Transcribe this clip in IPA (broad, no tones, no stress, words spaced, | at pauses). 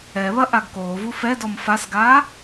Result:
ɛβɐ ʔaɡkoːvu fɛdɔm fasɡaː